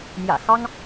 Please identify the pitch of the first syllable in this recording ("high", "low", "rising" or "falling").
low